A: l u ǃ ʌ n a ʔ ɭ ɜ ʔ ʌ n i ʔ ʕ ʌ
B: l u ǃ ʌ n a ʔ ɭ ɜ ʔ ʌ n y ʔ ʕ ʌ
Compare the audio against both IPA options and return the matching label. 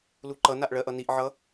A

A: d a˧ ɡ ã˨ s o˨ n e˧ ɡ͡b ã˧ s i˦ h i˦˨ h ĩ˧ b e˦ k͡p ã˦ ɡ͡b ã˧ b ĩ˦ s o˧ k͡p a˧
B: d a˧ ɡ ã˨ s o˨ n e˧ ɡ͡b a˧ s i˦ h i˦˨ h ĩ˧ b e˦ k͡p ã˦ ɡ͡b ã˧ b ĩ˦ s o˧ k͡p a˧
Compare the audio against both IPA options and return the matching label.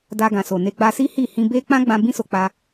B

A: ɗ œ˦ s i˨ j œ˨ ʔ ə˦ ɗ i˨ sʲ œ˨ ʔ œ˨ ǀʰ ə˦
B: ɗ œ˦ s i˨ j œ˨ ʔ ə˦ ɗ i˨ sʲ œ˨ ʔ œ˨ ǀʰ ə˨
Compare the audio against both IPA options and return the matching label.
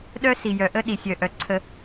A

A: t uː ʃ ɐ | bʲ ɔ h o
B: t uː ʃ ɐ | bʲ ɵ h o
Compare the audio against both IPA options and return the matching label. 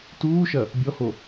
A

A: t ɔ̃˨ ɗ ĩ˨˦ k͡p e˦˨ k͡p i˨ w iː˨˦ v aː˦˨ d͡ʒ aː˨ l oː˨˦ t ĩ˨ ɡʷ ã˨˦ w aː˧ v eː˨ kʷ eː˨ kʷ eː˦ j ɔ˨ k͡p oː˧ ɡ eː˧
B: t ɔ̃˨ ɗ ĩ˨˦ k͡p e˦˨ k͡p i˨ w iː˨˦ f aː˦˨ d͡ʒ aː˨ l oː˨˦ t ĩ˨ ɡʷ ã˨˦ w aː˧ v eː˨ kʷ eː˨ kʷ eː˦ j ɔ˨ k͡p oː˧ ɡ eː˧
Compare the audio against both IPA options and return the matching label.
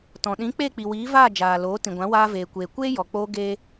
A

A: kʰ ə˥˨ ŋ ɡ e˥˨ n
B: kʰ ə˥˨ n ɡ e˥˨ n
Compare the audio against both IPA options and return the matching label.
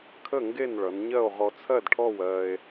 A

